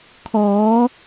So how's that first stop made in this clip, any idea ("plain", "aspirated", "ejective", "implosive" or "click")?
aspirated